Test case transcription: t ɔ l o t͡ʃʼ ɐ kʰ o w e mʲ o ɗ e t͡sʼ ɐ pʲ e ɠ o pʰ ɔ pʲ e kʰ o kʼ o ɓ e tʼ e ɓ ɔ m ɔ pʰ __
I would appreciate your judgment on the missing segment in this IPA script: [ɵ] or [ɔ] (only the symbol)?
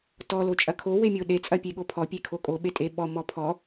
ɔ